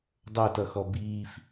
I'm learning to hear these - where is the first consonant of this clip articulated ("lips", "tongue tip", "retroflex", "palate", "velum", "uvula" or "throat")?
tongue tip